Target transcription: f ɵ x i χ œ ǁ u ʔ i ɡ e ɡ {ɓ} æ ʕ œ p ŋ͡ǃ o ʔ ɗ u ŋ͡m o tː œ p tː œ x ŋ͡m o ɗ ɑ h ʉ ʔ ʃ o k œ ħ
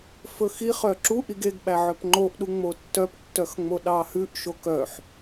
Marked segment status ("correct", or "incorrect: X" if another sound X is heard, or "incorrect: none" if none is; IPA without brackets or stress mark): correct